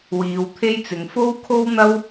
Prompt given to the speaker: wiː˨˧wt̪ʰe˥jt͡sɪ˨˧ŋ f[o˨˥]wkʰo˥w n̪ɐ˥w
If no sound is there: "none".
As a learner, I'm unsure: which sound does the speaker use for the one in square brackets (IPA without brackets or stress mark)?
o˥